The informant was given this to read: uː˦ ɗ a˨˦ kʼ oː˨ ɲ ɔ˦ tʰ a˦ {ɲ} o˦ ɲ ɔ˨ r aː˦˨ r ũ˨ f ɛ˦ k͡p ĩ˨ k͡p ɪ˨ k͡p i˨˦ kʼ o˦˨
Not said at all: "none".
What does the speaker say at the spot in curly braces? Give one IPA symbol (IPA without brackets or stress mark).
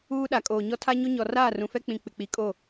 ɲ